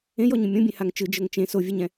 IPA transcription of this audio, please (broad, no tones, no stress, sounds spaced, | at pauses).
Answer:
ẽ j ɔ ɲ ũ mʲ õ bʲ ẽ h a ŋ t͡ʃ ɯ d͡ʒ ɤ ŋ t͡ʃ ẽ s o vʲ ɛ ɲ ɛ̃